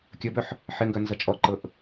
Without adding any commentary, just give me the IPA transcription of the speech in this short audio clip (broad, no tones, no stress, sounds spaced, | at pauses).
kʲ ə b œ ħ | ħ ɪ ŋ ɡ œ n z ʌ t͡ʃʼ ɔ ǃ ɤ ʔ